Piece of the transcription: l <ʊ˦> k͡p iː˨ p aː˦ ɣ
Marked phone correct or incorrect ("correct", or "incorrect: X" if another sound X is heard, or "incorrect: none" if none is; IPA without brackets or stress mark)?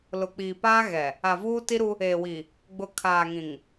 incorrect: ʊ˨